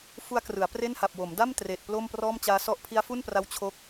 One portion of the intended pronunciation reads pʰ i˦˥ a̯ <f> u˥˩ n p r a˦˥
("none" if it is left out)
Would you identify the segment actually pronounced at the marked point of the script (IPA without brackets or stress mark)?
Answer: f